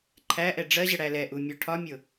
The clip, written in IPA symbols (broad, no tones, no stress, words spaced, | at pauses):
ǃʰæʔɛ ɖ͡ʐɜʑə ɽælɛʔu mʲɔʈʰɒmʲʊ